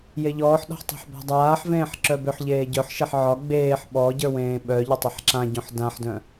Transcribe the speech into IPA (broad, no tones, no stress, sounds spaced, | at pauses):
j e ʎ ɔː ħ ɗ ɔ̤ ħ tˤ ɛ̤ ħ b ɔ̤ dˤ aː ħ v ẽː ħ ǁ œ b ʏ ħ ʎ eː ɟ œ ħ ʃ ɛ ħ ʕ ɒ ɡ͡b eː ħ ɓ ɔ ɟ ə˞ w ẽː ɓ œ ʎ ʏ tˤ e ħ ǁ ã ɟ õ ħ d ã ħ d œ̃